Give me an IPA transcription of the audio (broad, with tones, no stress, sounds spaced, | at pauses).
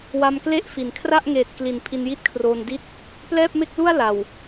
w a˧ m k l e˥˩ ʔ f i˩˦ n kʰ r a˥˩ ʔ ŋ eː˨˩ t̚ k l i˩˦ n pʰ i˧ n j i˥˩ t̚ kʰ r oː˧ n d i˥˩ t̚ | p l ɛː˥˩ p̚ m e˥˩ k̚ l u˥˩ a̯ l a˨˩ w